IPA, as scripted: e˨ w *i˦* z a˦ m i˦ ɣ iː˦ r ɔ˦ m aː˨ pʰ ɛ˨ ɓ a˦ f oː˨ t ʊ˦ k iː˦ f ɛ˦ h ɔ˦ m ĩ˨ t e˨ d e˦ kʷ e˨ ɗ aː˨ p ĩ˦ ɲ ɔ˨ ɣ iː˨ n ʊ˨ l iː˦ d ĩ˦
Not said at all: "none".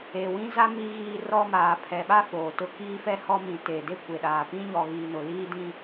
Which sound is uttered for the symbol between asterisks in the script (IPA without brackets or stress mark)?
ĩ˦